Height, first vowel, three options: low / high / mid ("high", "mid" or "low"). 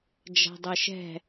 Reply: low